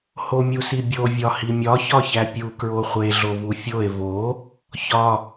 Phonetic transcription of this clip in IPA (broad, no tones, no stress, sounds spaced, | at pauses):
h o mʲ u s i bʲ o vʲ ɒ h i mʲ ɒ ç ɒ ç æ pʲ u k ɹ o χʷ e ɮ o v u fʲ o e̯ v o | ç ɒ